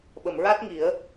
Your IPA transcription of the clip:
ɓ ə˨˩˨ m ɹ a˦˥ t̚ ŋ i˨˩˦ ə̯

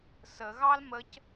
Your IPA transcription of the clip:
s ə ɣ ɑ l m ə c

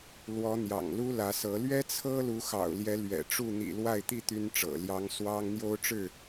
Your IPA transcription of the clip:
l w ɔ˨˦ n̪ j ɑ̰˨˩ ŋ l u˦ l ä˨˦ s ɤ˨˦ l ɥ ɛ˦ t͡sʰ ɤ˦ l u˨˦ x ɑ̰˨˩ ʊ̯ l j ɛ˨˦ l ɥ ɛ̰˨˩ ʈ͡ʂ u˥˨ n̪ ḭ˨˩ l w a˥˨ ɪ̯ t̪ i˥˨ t̪ y˦ n ʈ͡ʂ ɤ̰˨˩ l j ɑ˨˦ ŋ s w ɑ˦ ŋ n̪ j o˦ ʊ̯ ʈ͡ʂ ɻ̩˥˨

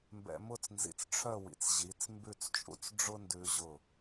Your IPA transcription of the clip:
m b ɛ̰˧ m ʊ˥˧ t͡s n z ḭ˧˩ t͡s ʈ͡ʂʰ œ˥˧ w ḭ˩˧ t͡s ʑ i˩˧ t͡s m b ʉ˥˧ t͡s t͡ʃʼ ṵ˥ t͡s ɖ͡ʐ ʊ˥ n d ʉ˧ ʑ ʊ˧˩

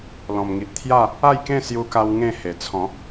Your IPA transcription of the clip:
l ɔ̃˨˩ m ŋ i˨ ʔ t̪ʰ j a˥˧ | a˥˧ j k ẽ˥˧ s j u˧ k a˧ w ŋ ẽ˥˧ h e˨˩ t͡sʰ ɔ̃˨˦

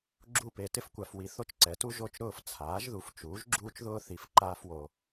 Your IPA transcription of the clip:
ɡ͡ǁ u˦˨ p e˨ t ɪ˦ f kʷ a˨ f w i˨ θ o˦ t͡ʃ ǀ ɛ˩˥ t u˦ ʒ o˦˨ t͡ʃ ɾ ʊː˦˨ f t͡sʰ aː˩˥ ʒ ð u˨ f t͡ʃ uː˩˥ ʒ ɡ͡ǁ uː˦ t͡ʃ ð ʊː˦ θ i˨˩˦ f ǃ aː˦ f w o˨

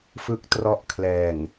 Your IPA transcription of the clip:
f ɯ˦˥ k̚ t r ɔ˦˥ ʔ kʰ l ɛː˨˩ ŋ

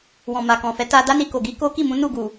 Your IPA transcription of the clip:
w ɔ̃˨ m a˨ k ɔ̃˨ f ɛ˨˦ t a˧ d a˦ n i˧ k o˨ ɡ i˨˦ k o˦ k i˦˨ m ũ˨˦ n u˦˨ ɡ u˨

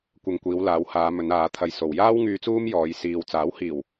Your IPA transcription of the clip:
kʷ ɐ˧ ŋ kʷ iː˨˧ w l aː˨˧ w h aː˨˧ m ɵ˨˧ n aː˨˧ t̪ʰ ɐ˧ j s o˨ w j aː˥ w ŋ yː˧ t͡s uː˥ m j ɔː˨˧ j s iː˨ w t͡s aː˨˥ w h iː˨˩ w

